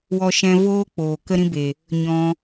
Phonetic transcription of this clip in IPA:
w ɔ˧ ʃ ɛ̃˧ v oː˦ k͡p oː˨ k ə˦ ɾ ĩ˦ b e˨ | ɲ ɔ̃˧

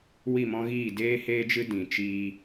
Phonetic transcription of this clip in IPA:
w i˦˨ m ɔ̃˦ ɣ iː˦˨ d eː˦ h eː˦ d͡ʒ ɨ˦ d ĩ˨ t͡ʃ iː˦

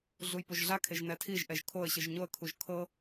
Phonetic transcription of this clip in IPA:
ɮ u j p o ʒ ɮ a kʰ e ʒ n ɛ tʰ i ʒ ʔ ɛ ʒ kʰ o ə̯ ɕ ɯ ʒ ɲ o ə̯ kʰ u ʒ kʰ ɤ

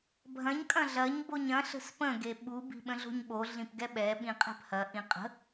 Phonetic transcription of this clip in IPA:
bʱ ɐ̃ ɲ kʼ ɐ̃ ɮ ɐ ɲ b o ɲ ɐ̃ ɬ ə̤ s p ə̃ ɡ e ɓ u b i̤ ɓ ə̃ ɮ o̤ ɲ ɓ o ɮ ĩ p ɡ ɛ ɓ ɛ ɓ ĩ qʼ ɛ̤ p h ɐ ʔ ĩ qʼ ə̤

